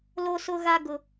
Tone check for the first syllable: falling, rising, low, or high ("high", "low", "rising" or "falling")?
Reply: high